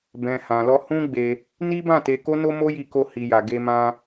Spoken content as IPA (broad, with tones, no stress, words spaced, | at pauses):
bɛ̃˧ hã˧lɔ˦ hũ˦ɡ͡be˧ | ni˦bã˦˨te˧ ko˦no˦mo˦ji˧ ko˦ hi˧ja˧ ɡe˧mã˧